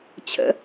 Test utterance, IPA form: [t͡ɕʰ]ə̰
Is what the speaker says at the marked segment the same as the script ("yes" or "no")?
yes